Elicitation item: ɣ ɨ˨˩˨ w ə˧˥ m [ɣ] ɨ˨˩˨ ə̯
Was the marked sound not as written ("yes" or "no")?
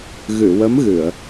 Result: no